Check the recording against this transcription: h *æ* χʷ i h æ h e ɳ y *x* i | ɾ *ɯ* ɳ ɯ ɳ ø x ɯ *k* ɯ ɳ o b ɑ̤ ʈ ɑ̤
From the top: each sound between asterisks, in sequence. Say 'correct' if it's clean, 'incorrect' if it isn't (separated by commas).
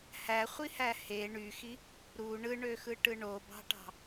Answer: correct, correct, incorrect, incorrect